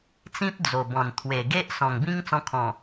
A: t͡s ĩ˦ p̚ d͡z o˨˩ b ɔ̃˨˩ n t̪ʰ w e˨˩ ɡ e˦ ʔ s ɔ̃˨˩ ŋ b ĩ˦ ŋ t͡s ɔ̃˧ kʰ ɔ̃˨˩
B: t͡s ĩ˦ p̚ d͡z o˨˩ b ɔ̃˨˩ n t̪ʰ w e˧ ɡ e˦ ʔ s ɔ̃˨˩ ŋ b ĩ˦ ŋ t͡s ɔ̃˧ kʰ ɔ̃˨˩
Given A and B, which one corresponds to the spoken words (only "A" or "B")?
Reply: A